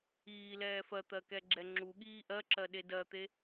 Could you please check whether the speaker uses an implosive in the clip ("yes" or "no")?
yes